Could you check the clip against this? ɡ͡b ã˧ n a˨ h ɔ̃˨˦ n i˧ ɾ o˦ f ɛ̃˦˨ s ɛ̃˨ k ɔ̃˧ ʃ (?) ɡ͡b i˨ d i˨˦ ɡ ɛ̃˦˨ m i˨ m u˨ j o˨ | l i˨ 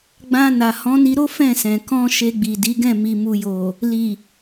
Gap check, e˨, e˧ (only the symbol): e˧